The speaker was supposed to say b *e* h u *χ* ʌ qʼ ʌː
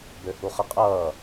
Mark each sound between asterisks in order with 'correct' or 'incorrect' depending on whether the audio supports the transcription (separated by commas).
incorrect, correct